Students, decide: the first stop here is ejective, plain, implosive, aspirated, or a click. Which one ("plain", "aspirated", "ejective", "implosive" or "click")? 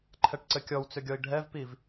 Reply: click